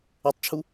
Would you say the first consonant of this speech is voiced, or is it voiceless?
voiceless